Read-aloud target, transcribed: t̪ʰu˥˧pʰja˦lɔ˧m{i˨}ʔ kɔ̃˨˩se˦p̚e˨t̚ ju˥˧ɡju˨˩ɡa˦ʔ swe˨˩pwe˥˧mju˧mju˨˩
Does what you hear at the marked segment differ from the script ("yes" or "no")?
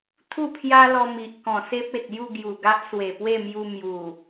no